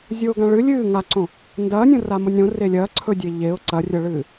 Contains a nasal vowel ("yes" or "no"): yes